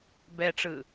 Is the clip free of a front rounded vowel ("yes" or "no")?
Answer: yes